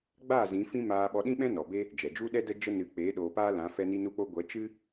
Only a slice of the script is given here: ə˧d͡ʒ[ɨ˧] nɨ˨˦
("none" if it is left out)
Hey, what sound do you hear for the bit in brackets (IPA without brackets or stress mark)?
ə˧